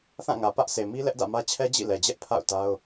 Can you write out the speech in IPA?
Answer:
θ ã˦˨ ŋ ä˨ p ä˦ ʔ sʰ e˨ m i˦ l ɛ˦ ʔ d ä̰˦˨ m ä˦ t͡ɕʰ ɛ˦ d͡ʑ ḭ˦˨ l ɛ˨ d͡ʑ ɛ˦ ʔ pʰ a̰˦˨ ʊ̯ t a˦ ʊ̯

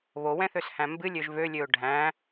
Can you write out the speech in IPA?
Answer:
β o w ɛ̃ θ ø s h æ̃ m b ɨ lʲ ø ʒ v ø lʲ ø ʊ̯ ɖʱ æ̃

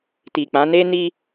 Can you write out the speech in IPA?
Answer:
t i˨ k͡p ã˨˦ n e˦ n i˦

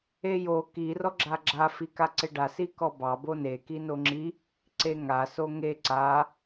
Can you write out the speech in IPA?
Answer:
e j o k i r ɔ ɡ͡ǁ a ɡ͡ǁ a f i k a ǀ e ɖ a s i k ɔ b ɑ b o n e k i n o ŋ͡ǁ i | ǀ e ŋ a s o ŋ e ǀ a

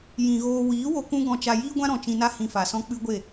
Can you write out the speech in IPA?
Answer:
j ĩ˨ ɣ oː˧ w iː˨˦ w o˧ k ũ˦ ɡ ɔ̃˧ t͡ʃ a˧ j iː˦ ɡʷ ã˦ ɾ ɔ̃˨ t͡ʃ ĩ˧ n a˦ h ĩ˧ f a˨ s ɔ̃˦ k͡p ɨ˦ ɡʷ e˦˨

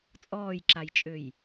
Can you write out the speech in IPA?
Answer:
t͡sʼ ɔː j ǁ a j t͡ʃʼ ø j

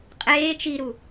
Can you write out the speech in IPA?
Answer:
qʼ eː t͡ʃ i ɾ u

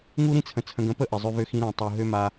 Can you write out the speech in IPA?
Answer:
ŋ u˦ ɾ ĩ˦ t͡sʰ ə̃˨ t͡sʰ ə̃˨ ɡ ə̃˨˦ p ə˦˨ ʔ ɪ˨ zˤ ø˦ v ø˦ x ĩ˦ ɾ ɛ̃˨ tˤ u˨ ɦ ø˦ m a˦

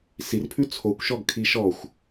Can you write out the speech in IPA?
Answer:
s i r pʰ ʉ t͡sʰ o kʷ ʃ ɔ ɡ kʰ i ʃ ɔ xʷ

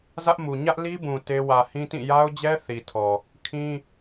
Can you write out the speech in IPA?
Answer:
z ä˦ ʔ m u˨ ɲ ä˦ ʔ l i˦ b ũ˨ t e˦ w ä˨ h ĩ˦ t ĩ˦˨ j a˦ ʊ̯ d͡ʑ ɛ˦ θ i˨ tʰ ɔ˨ | kʰ ĩ˦

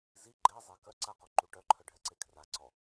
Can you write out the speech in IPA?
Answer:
z i ɡ͡ǃ e zˤ e k œ ǀ a q o ǃ u ʈ œ ǃʰ œ ɖʱ ɛ ǀ e kʰ r a ǀ ɔ

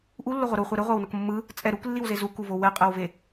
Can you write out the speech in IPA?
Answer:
ʔ u lː o ʁʷ ʌ ɾ u χʷ ɛ ɾ ɯ ʁʷ a w n ʌ k mː ɯ | t͡sʼ ɛ ɾ u k lː i w z e z u k u v o w ɛ qʼ ɛ w v e

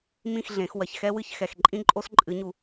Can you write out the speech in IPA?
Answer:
m ĩ˥˨ x ɮ ẽ˨˩˦ x w ɐ˨ ç x ɛ˦ w ɨ˥˨ ç x ɛ˨ x ǃʼ ĩ˦ ǃʼ o˦ s ǃʼ ɨ˨˩˦ ɲ u˨

